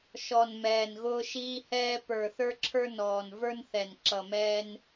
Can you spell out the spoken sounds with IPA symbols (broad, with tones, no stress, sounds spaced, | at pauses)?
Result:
ʃ ɔ˨˩ n m ɛː˨˩ n ɣ ʊː˧ ʃ iː˧ h ɛː˧ p ə˞˨˩ θ ə˞˧ ǁʰ ə˞˧ n ɔː˨˩ n v ə˞˧ n θ ɛ˨˩ n ǁ ʌ˨˩ m ɛː˧ n